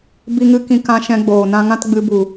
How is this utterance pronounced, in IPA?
bi˦ŋɨ˦ kĩ˧kã˧ ʃɛ̃˧ ɡ͡boː˨nã˧ ŋã˦tɡ͡bɨ˧bu˨

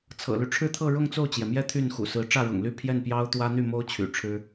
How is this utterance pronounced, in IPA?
t͡sʰɤ̰˨˩ly˦ʈ͡ʂʰɻ̩˥˧t̪ʰɤ˥˧ ɻʊ˥˧ŋt͡so˥˩ʊ̯t͡ɕjɛ˩mjɛ˥˧ t̪ʰy˥˩nxṵ˨˩sɹ̩˧˥ ʈ͡ʂä˥˩ɻʊ̰˨˩ŋly˥˧ pʰjɛ˥˩n pjɑ˥ʊ̯t̪wä˥ n̪y˥˩mo˥ʊ̯ t͡ɕʰy̰˨˩ʈ͡ʂʰɻ̩˥

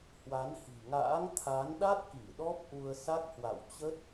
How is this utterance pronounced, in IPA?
hwa˨˦nhi̤˨˩ŋa̰ː˧˥ŋ t̪ʰa˨˦nɗa˦˥t̚ki˧˩ ɗɔ˦˥p̚ʔu˧ə̯sa˦˥k̚ hwa̰˧˨wt͡ɕə˦˥t̚

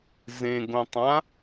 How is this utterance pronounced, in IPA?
zẽɡõtˤã

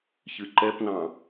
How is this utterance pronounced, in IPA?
çɨǃɛpnɑ̃

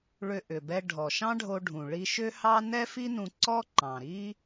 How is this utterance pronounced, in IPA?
ɭʏ˧ʔʏ˩bɛ˧ ɖʱɔ˩ʃɑ̃˥ɖʱo˧ɖʱũ˩ ɭi˧ʃʏ˥ hɑ˥ nɛ˥fi˥nũ˧ ǀɔ˥ǃɑ̃˩ɾi˥

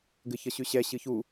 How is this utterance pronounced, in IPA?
ɡɘçʌɕʉɕɛ ɕɨçu

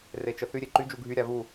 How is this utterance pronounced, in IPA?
ret͡ʃəθy ɾʲeǃy d͡ʒuɡʱy ɾʲavu

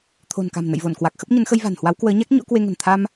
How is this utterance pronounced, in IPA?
t̪ʰo̤˨˩nka̤˨˩m nə̰˧˨jvo˧˩nkwa˨˩k̚ xə˦˥p̚ɲə˨˦nxə˧j va̤˨˩nhwa˨˦wkwəː˨˦ɲa˦˥k̚ ɲo̰˧˥kwe˧ŋə̤˨˩n t̪ʰa˧m

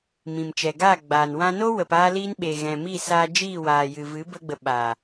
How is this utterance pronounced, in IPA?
mĩ˨mt͡ʃɛ˨ɡaː˦˨ɡ͡baː˨n wã˧no˦wə˨p aː˦li˦n ɓe˨ɣɛ̃˨miː˦˨saː˧ d͡ʒiː˦˨waː˨jɨ˨vɨ˨˦ bə˦ɡ͡bə˧ ɓaː˨

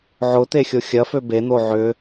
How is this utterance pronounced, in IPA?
ʕʊt̪exʲo xʲɐfø ben̪o ʕʏ

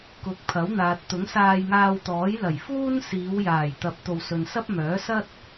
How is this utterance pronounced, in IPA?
kʊ˨˥k̚pʰɐ˨˥wn̪aː˨t̚ t̪ʊ˨˥ŋsaː˧jŋaː˧wt̪ɔː˨˥j lɐ˨˩jfuː˥nsiː˨˧w jaː˨˩jt̪ɐ˨˥p̚ t̪o˨wsɵ˨nsɐ˥p̚mœː˨˥ sɐ˥t̚

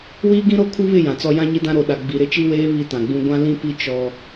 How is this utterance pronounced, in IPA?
wiː˦ɡĩ˦ɾo˦˨ kʰu˦βɪ˦˨ jã˨t͡sɔ˦ jã˦ɲi˦dã˦ ɾo˨ ɗa˨ ɡ͡bi˨ ɾɪ˦t͡ʃi˦weː˦ βi˦tã˨ɡ͡bũ˦ ɡʷã˦ lĩ˦pi˦ t͡ʃɔ˦

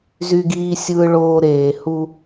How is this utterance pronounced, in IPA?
zy˦ɡiː˦ sʲɯː˦ɭoː˦ ɾeː˨hu˦

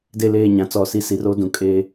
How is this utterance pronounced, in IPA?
de˦˨leː˦˨ɲã˨ t͡sɔ˦˨si˦ si˨˦ro˦dũ˨ kʼe˦

